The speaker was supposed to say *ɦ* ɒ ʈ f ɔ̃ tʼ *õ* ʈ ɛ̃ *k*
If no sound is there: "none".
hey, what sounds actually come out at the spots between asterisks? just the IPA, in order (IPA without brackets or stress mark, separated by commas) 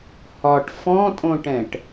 h, õ, ʈ